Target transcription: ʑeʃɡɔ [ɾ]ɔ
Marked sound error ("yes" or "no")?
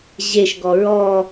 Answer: yes